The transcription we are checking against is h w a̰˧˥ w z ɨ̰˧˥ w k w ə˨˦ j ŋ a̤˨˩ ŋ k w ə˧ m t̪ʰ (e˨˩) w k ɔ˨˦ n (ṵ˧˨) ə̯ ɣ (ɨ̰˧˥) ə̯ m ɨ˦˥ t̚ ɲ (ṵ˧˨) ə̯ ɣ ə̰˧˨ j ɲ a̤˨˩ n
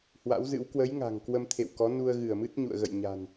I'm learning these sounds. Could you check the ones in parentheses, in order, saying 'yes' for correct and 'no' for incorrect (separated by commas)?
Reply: no, no, no, yes